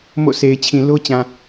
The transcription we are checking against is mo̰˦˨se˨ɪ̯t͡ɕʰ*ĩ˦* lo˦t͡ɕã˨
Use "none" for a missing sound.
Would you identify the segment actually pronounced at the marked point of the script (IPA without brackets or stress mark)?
ĩ˨